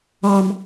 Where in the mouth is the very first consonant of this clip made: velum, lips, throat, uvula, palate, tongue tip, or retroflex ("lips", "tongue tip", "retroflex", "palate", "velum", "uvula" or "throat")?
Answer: lips